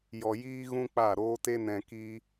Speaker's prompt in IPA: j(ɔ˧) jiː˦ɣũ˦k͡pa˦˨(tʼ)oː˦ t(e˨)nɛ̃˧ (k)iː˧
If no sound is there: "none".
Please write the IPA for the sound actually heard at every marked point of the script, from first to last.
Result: ɔ˧, ɾ, e˦, k

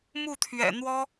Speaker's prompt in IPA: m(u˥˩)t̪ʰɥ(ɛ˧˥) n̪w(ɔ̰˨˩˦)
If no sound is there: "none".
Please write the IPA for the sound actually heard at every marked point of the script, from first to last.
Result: u˥˩, ɛ̰˨˩, ɔ˥

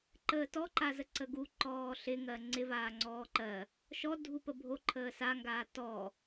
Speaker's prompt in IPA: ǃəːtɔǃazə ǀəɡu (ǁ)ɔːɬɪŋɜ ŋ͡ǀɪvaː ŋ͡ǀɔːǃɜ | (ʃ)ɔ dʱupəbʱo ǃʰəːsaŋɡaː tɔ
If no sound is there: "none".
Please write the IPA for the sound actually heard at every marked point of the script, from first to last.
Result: ǃ, ʃ

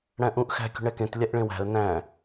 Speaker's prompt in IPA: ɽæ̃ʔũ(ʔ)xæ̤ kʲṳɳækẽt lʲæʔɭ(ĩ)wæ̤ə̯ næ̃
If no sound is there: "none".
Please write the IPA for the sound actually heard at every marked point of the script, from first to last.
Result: ʔ, ẽ

